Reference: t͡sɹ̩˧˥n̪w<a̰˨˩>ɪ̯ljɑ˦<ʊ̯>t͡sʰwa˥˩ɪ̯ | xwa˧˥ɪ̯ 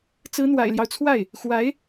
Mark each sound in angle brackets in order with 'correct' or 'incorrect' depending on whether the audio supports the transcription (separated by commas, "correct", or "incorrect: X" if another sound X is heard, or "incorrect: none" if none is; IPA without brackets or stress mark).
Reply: correct, correct